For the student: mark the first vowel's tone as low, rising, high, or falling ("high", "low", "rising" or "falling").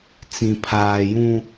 high